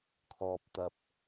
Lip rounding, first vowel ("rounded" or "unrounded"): rounded